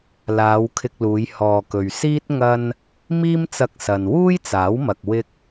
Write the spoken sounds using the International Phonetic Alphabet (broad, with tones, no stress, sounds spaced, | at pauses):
l aː˨˧ w kʰ ɪ˧ k̚ l uː˨˧ j h ɔː˨ k ɵ˨ ɥ s iː˥ t̚ ŋ ɐ˥ n | m iː˥ m t͡s ɐ˧ k̚ s ɐ˨ n w uː˥ j t͡s aː˨˥ w m ɐ˨ k̚ w ɪ˧ k̚